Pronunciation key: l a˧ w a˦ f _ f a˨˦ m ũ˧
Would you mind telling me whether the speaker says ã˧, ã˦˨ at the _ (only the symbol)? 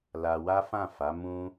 ã˦˨